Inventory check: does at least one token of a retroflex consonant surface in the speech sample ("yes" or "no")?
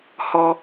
no